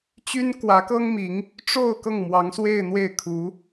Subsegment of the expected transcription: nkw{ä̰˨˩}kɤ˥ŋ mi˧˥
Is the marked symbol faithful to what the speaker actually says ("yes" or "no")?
no